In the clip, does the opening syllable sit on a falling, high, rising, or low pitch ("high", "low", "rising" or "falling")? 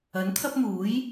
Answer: rising